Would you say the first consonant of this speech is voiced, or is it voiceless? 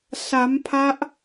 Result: voiceless